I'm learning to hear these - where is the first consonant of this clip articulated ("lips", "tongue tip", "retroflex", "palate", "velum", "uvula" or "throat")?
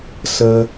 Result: tongue tip